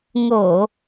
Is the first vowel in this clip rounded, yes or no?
yes